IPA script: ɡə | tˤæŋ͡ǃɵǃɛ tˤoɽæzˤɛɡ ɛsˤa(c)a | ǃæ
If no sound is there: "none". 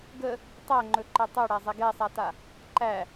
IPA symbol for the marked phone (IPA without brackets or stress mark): t